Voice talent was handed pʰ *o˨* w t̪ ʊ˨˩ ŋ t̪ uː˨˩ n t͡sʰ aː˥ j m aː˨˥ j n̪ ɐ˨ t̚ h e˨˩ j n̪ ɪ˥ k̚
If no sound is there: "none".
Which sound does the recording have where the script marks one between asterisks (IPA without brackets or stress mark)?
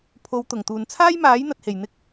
o˨˧